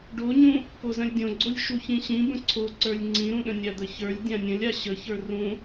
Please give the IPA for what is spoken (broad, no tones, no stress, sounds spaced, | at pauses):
ɖ o ɲ ũ | p o z ə̃ lʲ dʲ õ ɡ͡ǀ o lʲ ʃ u ç ĩ ɕ ĩ b ə̃ ǀʰ o ǀ ə˞ lʲ ŋ͡ǀ ĩ ɾ ũ ɗ ə̃ nʲ a d̪ ə ç ə˞ lʲ dʲ ã nʲ ə̃ lʲ a ɕ ə ç ə˞ r ũ